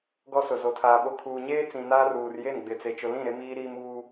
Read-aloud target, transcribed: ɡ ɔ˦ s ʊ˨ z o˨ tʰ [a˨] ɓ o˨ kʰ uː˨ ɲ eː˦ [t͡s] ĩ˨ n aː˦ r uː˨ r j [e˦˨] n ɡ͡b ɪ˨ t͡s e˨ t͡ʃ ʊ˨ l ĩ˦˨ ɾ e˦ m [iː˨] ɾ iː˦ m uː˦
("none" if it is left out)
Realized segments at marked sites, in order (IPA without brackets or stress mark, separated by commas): aː˨, t͡s, e˦˨, iː˦